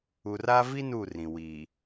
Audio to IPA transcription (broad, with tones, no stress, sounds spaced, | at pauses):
u˨ r a˦ v i˦ n u˦˨ r ĩ˨ w iː˨